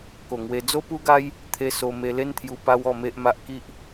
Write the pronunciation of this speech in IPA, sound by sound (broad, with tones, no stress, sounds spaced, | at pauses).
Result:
k o˨˩ ŋ w e˧ d͡z o˦ p u˦ ɡ a˦ j | t̪ʰ e˧ s o˧ m e˧ l e˦ n t̪ʰ j u˧ p a˦ w ɔ˥˧ m e˦ ʔ m a˦ ʔ k i˦ ʔ